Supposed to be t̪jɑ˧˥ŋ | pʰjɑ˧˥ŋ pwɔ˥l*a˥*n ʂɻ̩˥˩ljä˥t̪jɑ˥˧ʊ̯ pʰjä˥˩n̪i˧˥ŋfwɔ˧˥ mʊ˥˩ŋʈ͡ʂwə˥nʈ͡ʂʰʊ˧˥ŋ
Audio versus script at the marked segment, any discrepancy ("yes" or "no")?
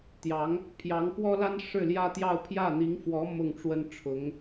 no